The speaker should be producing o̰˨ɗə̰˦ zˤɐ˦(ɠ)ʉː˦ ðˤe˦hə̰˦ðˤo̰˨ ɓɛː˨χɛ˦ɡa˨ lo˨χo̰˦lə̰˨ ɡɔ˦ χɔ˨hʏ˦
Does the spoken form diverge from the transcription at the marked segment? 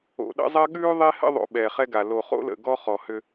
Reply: no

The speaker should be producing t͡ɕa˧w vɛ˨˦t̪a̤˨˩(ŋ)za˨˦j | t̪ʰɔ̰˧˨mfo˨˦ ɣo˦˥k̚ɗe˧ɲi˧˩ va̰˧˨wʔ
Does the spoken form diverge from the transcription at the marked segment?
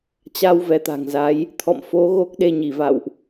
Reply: no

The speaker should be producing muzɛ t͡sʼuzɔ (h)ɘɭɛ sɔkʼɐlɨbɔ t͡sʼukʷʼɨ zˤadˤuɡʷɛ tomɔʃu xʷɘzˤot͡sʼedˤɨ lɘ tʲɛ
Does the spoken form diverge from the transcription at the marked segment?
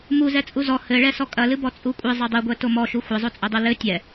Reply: no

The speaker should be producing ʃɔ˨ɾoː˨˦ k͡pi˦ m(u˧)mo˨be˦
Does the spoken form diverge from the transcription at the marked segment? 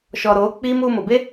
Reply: no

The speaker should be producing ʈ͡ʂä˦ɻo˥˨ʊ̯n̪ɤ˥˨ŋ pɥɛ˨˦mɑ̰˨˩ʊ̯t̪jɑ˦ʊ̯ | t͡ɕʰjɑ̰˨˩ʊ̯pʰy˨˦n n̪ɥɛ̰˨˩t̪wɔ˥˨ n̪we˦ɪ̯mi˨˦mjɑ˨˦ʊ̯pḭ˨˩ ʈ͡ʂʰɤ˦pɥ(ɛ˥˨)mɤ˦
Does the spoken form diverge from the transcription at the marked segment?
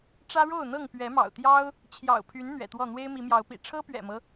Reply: yes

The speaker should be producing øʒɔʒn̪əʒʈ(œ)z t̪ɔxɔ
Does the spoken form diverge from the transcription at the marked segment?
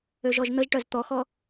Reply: no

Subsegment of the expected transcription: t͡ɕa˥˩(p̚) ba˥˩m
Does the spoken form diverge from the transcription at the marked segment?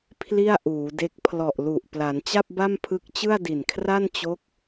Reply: no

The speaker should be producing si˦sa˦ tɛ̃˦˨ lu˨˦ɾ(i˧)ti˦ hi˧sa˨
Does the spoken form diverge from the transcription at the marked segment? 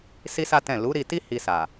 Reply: no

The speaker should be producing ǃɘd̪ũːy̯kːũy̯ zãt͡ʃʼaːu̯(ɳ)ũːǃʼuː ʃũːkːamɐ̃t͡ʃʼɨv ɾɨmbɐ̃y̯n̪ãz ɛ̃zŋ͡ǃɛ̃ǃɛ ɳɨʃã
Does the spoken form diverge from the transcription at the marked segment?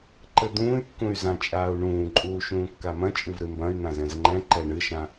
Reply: no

